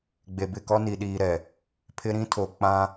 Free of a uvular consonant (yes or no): yes